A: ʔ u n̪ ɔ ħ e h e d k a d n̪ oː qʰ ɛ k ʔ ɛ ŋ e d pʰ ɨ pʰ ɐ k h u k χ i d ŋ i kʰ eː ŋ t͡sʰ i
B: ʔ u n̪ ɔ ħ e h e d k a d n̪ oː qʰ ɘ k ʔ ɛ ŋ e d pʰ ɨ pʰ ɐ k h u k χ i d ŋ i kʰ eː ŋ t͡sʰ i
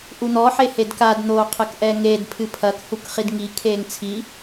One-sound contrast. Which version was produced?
B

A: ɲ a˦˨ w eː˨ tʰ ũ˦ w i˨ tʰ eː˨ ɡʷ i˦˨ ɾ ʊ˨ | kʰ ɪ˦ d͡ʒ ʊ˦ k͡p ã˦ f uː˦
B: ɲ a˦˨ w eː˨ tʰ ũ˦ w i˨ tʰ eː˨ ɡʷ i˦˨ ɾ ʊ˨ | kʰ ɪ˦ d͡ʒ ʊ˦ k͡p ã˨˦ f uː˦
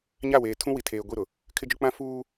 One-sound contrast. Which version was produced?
A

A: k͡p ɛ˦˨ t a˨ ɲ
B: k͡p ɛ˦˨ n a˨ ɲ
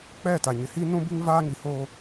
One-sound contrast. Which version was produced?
A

